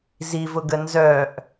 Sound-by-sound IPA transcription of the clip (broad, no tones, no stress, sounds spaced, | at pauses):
z i v ʊ ɡ ə n z œ ʔ